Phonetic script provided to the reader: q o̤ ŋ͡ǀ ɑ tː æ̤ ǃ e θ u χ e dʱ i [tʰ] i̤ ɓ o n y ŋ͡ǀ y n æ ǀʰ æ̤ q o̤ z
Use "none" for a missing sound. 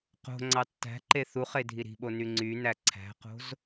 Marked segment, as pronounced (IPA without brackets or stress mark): ɾ